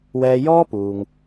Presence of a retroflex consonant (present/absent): absent